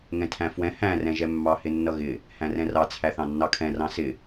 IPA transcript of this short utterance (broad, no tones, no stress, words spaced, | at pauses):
ŋɛ̃tʰæ̃fwɛ̃ hæ̃ rɛ̃ʒɛmːɑ hɪnːʌɣɪ | hæ̃rɛ̃rɑ t͡sʰæθɑ̃nːɑkʰɛ̃ rɑ̃sɪ